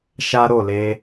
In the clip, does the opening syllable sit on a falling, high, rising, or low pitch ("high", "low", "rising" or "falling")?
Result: high